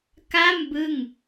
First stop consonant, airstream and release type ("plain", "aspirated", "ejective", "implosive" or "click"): plain